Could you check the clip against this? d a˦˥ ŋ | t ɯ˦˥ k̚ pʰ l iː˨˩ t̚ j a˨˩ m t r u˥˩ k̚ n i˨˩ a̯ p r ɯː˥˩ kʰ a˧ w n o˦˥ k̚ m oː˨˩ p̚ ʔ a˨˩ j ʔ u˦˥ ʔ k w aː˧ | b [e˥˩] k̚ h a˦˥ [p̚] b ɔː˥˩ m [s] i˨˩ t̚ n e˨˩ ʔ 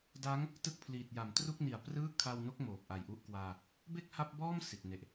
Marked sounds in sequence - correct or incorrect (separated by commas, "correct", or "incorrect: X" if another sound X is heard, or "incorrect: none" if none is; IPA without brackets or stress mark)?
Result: correct, correct, correct